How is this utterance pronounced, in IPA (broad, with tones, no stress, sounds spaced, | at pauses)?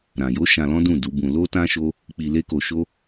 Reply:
ɾ ã˨ j o˨˦ ʃ ã˧ l ɔ̃˦ d ũ˦˨ d u˨˦ b ũ˧ l o˦ t ã˦ ʃ o˦ | k͡p i˧ l e˦ k o˧ ʃ o˦